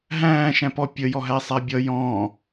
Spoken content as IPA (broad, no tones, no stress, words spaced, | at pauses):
ɦæ̃ː ʃæ̃pɔ pʲə jɔɦæsˤabʲʌ jɔ̃ː